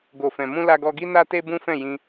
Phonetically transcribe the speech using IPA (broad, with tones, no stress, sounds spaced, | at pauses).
ɡ o˨ f ɛ̃˨ m ũ˧ l a˧ ɡ ɔ˧ ɡ i˦ n a˦ t e˦ b ũ˦ f ɛ̃˦˨ j ĩ˧